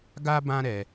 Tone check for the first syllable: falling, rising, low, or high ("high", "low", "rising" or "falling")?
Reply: high